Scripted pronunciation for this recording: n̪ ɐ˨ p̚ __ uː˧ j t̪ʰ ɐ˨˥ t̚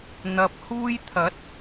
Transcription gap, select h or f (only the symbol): h